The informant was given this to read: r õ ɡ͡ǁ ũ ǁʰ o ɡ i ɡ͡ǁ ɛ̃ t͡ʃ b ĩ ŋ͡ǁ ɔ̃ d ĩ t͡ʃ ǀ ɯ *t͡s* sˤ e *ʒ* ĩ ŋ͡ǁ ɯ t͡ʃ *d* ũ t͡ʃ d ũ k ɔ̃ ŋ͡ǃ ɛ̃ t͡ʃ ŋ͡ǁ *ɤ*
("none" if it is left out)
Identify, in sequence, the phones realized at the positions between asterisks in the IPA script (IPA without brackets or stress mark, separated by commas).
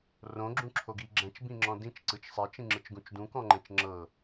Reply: t͡ʃ, t͡ʃ, ɡ, ɤ